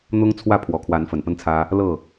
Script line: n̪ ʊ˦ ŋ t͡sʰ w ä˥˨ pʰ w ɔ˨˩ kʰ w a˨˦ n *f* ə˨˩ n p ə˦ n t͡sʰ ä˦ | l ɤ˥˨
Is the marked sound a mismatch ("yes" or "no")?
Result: no